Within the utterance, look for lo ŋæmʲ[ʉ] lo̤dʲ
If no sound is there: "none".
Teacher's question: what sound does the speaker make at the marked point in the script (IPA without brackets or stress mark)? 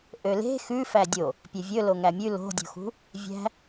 ʉ